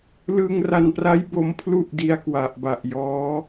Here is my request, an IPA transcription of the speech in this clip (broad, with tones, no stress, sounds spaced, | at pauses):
l ɯ˧ ŋ r a˧ n p r a˦˥ j b o˧ m pʰ l u˥˩ ʔ d i˦˥ a̯ k w a˨˩ ʔ b a˨˩ ʔ j ɔː˦˥